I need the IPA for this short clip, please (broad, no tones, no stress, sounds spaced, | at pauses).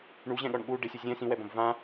ɳ u ʑ ɛ̃ ɠ ɔ ɳ ɠ u ɖ ɪ sʲ u zʲ ɛ̃ s ĩ w ɛ b ɐ̃ b v ã